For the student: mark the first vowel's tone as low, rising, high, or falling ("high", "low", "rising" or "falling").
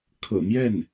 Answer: low